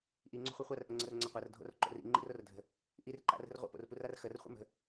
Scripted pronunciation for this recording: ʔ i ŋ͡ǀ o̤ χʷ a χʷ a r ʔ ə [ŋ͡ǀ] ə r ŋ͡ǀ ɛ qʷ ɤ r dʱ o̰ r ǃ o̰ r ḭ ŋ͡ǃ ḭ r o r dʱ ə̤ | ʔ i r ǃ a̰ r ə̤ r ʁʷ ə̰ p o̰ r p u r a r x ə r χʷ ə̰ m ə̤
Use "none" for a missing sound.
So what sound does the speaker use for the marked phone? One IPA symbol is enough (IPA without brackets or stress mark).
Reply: ŋ͡ǀ